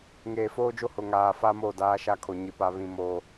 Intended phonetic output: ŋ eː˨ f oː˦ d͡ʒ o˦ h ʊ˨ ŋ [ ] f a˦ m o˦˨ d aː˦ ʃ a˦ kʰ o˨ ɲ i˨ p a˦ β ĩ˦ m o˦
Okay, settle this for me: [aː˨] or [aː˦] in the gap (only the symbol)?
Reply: aː˨